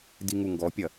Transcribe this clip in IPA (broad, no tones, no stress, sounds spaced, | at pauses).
d i ŋ u ŋ ɡ ɔ pʲ ɐ